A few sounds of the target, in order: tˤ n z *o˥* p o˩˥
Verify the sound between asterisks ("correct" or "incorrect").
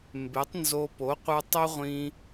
incorrect